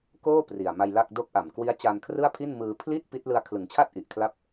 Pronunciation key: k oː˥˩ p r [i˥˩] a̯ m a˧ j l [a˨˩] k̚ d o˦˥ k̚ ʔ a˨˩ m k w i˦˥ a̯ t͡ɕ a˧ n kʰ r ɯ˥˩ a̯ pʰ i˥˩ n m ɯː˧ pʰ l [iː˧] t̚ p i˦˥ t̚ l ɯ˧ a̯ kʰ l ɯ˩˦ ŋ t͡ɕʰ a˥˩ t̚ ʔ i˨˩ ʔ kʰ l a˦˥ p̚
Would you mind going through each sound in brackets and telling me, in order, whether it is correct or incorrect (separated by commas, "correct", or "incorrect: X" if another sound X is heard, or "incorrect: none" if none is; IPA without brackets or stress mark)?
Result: incorrect: i˨˩, incorrect: a˥˩, incorrect: iː˥˩